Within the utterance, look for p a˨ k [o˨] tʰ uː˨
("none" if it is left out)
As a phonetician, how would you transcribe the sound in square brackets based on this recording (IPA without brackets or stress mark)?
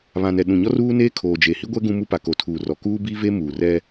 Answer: o˨